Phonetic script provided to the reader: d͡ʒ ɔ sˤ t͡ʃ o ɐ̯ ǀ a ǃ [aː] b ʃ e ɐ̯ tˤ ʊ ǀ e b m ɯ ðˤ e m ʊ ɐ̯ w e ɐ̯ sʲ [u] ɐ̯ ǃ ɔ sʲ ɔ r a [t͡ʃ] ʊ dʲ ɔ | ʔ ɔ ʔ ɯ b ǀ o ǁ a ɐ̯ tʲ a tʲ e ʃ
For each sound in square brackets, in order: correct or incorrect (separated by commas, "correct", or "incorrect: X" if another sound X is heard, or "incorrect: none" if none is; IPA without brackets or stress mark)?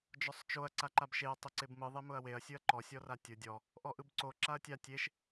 incorrect: a, incorrect: ɯ, incorrect: tʲ